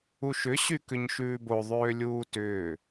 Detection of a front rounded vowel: present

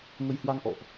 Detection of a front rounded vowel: absent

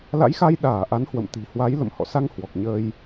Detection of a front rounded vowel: absent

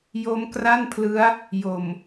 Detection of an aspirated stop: present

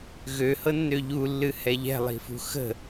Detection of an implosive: absent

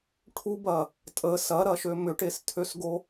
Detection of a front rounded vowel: present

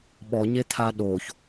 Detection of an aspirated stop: present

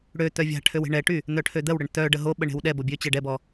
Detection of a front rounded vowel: present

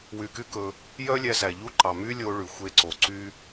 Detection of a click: present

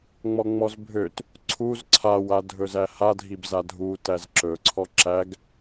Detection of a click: present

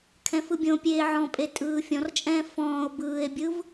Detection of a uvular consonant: absent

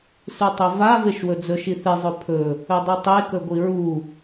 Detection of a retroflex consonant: absent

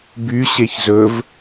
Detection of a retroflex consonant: absent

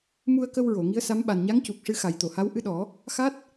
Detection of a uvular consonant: absent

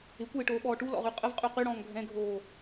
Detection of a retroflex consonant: present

